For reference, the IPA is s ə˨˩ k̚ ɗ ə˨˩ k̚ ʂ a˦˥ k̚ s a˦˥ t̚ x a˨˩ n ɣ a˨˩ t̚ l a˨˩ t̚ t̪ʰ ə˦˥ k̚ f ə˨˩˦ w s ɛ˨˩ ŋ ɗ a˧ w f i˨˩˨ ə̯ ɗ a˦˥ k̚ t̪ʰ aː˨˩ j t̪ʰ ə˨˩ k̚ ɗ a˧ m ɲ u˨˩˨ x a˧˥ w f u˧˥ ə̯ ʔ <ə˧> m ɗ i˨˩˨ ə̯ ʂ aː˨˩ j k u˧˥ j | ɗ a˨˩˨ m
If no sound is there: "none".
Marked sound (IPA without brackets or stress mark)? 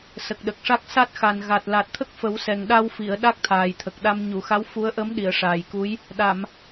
ə˧˥